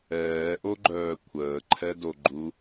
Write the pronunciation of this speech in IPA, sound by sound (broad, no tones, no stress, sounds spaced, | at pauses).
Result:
ɛː ʔ o ɡ͡ǃ œː kʷʰ əː ǃʰ ɛ d o ɡ͡ǃ u